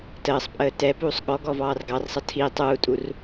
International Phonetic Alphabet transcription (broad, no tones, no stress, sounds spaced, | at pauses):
t əː sˤ pʼ əː t ɛ p uː sˤ ɠ ɔ ɡ ɔ v ɑː r ɡ ɑ r sˤ ʌ tʰ iː tˤ uː tʼ u r